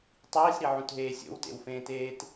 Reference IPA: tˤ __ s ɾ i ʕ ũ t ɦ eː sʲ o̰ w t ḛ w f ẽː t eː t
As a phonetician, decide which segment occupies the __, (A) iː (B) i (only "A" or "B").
A